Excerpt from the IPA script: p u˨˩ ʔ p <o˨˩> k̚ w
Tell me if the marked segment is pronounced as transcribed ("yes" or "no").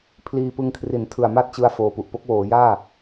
no